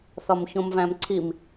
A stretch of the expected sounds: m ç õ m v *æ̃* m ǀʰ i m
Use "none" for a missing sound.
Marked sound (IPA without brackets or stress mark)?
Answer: æ̃